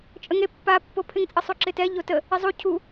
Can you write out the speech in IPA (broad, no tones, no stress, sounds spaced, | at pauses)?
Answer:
t͡ʃʼ ə ŋ e pː a pː o pʰ ɪ ŋ t͡sʼ ə sˤ u ǁ ɪ t ɛ ʎ o t ə | ɪ zˤ u cʰ u